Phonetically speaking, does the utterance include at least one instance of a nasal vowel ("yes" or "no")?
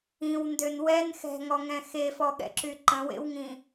yes